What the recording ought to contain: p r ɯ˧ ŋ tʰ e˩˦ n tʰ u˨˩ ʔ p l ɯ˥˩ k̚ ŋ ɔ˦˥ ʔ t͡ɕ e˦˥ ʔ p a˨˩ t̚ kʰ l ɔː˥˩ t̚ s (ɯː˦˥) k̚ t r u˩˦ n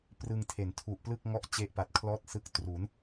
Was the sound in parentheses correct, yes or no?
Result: no